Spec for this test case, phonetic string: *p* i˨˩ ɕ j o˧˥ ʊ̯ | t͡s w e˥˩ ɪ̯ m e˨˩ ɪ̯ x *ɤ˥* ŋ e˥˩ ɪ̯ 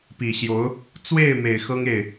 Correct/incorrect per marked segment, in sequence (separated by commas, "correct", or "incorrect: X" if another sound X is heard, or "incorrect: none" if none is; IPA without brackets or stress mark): correct, correct